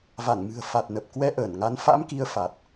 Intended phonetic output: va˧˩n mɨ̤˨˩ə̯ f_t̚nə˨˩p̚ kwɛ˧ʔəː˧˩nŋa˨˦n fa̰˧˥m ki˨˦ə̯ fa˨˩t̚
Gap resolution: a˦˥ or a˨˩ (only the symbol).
a˨˩